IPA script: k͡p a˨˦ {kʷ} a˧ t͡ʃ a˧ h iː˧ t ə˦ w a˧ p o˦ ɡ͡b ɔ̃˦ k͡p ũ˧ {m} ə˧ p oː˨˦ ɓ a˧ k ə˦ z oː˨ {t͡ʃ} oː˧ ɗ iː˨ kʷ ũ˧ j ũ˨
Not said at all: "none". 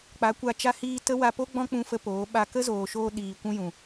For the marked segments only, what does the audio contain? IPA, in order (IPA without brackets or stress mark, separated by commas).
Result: kʷ, f, ʃ